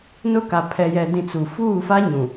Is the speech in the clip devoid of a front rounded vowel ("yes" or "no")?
yes